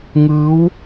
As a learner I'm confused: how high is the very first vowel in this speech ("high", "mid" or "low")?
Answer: high